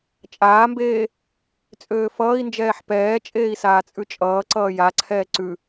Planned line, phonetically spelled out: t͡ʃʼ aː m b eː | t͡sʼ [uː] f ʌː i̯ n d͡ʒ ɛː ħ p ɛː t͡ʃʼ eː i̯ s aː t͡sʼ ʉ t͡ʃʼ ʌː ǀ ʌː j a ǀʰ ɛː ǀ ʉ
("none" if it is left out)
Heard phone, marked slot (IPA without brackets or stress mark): øː